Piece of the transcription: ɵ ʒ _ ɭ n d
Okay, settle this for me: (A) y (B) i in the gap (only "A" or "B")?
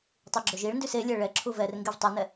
B